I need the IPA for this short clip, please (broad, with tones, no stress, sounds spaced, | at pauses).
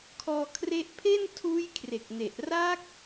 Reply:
kʰ ɔː˧ kʰ r e˦˥ ʔ pʰ e˥˩ n tʰ uː˦˥ j kʰ r e˨˩ k̚ n e˨˩ ʔ r a˦˥ k̚